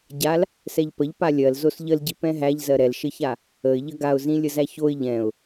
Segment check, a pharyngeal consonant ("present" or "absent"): absent